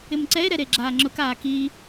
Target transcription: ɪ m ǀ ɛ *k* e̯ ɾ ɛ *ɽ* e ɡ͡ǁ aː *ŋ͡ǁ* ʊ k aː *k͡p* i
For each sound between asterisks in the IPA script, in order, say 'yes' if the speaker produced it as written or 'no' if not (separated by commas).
no, no, yes, no